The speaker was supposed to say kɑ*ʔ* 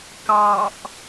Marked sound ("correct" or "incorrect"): correct